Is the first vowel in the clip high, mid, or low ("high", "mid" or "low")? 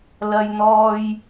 low